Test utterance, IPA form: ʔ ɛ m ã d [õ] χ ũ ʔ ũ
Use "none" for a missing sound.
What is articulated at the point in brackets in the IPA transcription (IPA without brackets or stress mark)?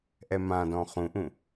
ɔ̃